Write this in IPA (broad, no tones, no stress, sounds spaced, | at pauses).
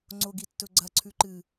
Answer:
ŋ͡ǀ o ɡ i tː ɵ ɡ͡ǀ ɐ ǀʰ ʉ ǃ ɨ